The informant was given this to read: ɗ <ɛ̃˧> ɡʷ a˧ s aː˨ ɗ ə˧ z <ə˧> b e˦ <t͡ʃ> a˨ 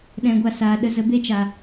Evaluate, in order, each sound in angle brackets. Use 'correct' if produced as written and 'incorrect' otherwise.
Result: correct, correct, correct

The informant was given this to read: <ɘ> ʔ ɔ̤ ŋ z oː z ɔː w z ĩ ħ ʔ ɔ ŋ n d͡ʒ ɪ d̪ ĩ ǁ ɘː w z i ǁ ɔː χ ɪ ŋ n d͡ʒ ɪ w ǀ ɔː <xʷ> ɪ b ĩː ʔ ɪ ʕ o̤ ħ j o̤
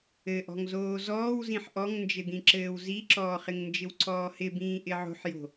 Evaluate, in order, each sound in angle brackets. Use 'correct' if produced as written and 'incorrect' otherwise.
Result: correct, incorrect: h

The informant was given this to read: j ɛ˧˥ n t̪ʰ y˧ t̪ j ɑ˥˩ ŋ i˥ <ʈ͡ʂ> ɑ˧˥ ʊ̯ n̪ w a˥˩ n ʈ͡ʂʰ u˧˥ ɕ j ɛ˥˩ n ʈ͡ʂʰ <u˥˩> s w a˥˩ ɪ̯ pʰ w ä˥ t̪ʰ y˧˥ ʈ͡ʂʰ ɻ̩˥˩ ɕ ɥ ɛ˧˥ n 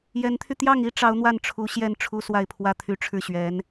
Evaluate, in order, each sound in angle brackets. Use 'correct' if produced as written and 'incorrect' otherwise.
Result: correct, incorrect: u˥

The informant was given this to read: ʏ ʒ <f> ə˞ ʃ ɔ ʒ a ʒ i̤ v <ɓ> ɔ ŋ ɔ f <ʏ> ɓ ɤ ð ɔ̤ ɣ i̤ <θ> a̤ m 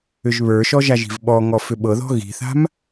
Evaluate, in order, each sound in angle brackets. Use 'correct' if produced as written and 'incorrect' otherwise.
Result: incorrect: β, correct, correct, correct

